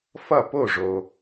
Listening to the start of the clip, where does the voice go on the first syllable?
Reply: falling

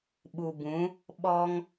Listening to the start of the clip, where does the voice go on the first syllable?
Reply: low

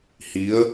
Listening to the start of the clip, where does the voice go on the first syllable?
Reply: rising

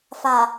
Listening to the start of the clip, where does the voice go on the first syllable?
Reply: low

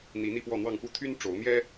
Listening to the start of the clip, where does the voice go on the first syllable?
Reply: rising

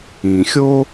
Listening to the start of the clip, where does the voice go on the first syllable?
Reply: low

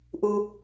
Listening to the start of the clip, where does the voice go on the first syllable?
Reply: high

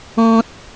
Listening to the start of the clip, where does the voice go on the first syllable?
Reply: low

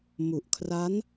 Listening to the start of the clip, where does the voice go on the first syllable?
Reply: low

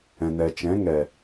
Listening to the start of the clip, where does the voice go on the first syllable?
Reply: low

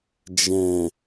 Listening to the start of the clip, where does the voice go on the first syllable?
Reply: low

